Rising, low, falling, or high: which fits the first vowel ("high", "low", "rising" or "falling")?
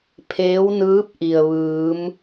rising